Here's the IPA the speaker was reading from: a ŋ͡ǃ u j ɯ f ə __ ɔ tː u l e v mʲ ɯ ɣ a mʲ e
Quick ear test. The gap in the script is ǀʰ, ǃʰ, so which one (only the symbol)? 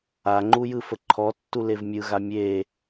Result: ǃʰ